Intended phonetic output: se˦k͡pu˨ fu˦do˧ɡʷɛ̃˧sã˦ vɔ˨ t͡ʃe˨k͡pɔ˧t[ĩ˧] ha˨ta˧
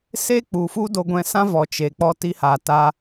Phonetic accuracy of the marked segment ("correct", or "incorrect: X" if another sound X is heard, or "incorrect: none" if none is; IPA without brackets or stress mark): incorrect: i˧